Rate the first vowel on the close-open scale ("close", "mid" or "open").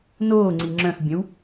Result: mid